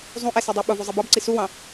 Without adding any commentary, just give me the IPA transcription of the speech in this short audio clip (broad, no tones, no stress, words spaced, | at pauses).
zˤũʔɛsidˤɑ ɓʊvuzˤi bɑbǀi suwɑ̃